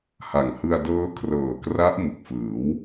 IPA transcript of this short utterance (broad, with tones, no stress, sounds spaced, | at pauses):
h a˨˩ ŋ h ɯ˧ a̯ d ɤː˦˥ kʰ r ɤː˨˩ k r a˦˥ ʔ m ɯ˨˩ k̚ f ɯː˩˦ w